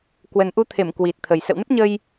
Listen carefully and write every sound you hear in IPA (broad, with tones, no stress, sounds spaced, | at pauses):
k w ə˨˩ n ʔ u˧ t̪ʰ e˧˩ m k w i˨˩ t̚ t̪ʰ ə˨˩ j s ə̰˧˨ w n ə˦˥ p̚ ɲ ə˧ j